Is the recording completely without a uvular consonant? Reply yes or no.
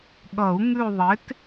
yes